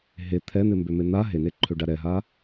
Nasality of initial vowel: oral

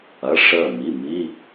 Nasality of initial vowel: oral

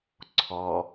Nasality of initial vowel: oral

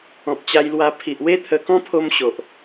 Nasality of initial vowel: nasal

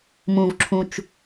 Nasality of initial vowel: nasal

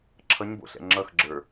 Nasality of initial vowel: oral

